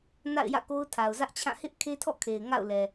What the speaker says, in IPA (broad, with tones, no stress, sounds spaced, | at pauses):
n a̰˦˨ ɪ̯ j ä̰˦˨ k o˦ ʊ̯ tʰ a˨ ʊ̯ z ä˦ ʔ t͡ɕʰ ã˦˨ h ɪ˦ ʔ kʰ e˦ tʰ ɔ̰˦˨ kʰ e˨ ɪ̯ ŋ a̰˦˨ ʊ̯ l ɛ˨